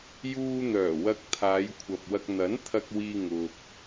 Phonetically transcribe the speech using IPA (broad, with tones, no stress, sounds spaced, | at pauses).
j uː˧ n̪ œː˨˩ w ɐ˧ k̚ t̪ʰ aː˨˧ j kʷʰ ɐ˨ p̚ w ɐ˧ k̚ n̪ ɐ˨˥ n t̪ʰ ɐ˧ k̚ w iː˧ ŋ ʊ˧ k̚